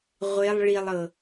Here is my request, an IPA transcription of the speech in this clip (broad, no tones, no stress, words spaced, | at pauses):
ʁʷelˠ ɭilˠɤ